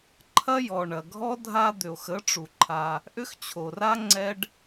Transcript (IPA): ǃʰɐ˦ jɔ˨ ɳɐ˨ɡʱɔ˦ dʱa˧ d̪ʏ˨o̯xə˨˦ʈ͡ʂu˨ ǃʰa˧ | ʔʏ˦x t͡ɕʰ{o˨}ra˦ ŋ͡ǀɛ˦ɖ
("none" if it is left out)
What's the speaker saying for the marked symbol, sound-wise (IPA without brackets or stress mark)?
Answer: o˨